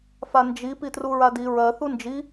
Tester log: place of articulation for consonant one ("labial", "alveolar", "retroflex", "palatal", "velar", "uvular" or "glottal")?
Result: labial